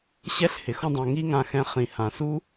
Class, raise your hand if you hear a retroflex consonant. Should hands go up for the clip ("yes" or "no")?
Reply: no